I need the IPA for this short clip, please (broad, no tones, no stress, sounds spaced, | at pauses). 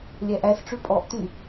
lʲ æ ʔ æ s ʈ͡ʂ ʉ pʼ ɔ ʔ t y